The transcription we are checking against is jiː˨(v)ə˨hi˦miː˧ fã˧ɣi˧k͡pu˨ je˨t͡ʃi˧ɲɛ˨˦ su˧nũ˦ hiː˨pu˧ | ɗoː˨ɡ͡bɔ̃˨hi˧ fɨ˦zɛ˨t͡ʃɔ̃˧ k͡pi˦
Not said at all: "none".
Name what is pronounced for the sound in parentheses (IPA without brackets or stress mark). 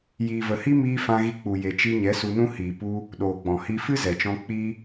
v